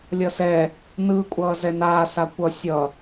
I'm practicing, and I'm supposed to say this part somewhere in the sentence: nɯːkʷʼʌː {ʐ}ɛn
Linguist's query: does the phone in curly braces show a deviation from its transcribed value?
yes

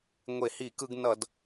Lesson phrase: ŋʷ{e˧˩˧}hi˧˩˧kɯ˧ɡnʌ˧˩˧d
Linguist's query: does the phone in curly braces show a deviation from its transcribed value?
no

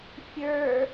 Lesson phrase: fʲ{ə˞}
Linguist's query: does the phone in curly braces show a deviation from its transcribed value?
no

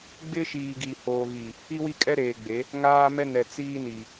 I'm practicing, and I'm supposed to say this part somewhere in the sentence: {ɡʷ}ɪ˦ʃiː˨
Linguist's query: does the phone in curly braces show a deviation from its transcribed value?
yes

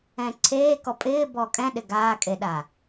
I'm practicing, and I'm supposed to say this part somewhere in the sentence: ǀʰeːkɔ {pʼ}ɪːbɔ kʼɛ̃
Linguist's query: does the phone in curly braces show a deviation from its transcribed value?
no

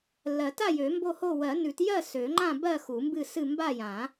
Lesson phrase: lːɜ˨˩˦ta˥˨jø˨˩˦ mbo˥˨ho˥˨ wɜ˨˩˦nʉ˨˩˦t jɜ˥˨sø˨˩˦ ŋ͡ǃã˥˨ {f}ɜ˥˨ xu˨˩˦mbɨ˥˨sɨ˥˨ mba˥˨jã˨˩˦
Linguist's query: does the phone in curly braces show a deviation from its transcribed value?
yes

